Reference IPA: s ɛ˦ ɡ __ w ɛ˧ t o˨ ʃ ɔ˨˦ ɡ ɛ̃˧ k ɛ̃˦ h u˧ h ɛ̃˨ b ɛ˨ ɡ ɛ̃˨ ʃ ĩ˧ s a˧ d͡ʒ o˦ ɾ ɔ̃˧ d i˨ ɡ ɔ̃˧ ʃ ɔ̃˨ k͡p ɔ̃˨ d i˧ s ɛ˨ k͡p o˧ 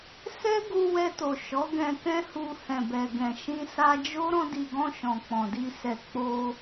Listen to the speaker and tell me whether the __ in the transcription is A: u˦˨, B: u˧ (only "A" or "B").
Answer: B